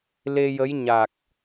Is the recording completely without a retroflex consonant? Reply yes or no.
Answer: yes